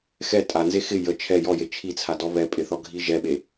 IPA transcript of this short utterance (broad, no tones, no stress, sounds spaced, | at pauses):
x ɛ tʼ a n z e x ɪ j ə t͡ʃʰ ɛ j ɔ j e t͡ʃʰ i t͡sʰ a d ɔ β ɛ pʼ ɪ θ ɔ ɡʱ i ʒ ɛ ɓ e